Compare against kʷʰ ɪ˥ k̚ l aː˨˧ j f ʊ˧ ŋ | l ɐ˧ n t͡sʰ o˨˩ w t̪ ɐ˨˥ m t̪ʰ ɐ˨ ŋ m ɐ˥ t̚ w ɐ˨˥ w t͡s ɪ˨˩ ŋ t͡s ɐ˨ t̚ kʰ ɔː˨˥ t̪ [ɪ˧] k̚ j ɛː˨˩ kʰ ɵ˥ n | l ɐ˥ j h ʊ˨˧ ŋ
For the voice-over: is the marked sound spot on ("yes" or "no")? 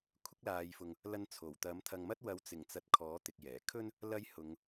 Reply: no